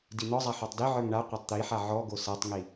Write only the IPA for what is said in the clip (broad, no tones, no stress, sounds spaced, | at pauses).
d i n̪ ɔ zˤ a ħ ɔ tˤ d i ʕ ə˞ ŋ ɳ a qʷ a tˤ t̪ i ħ a ʕ ɔ ɡ o s a tˤ ŋ i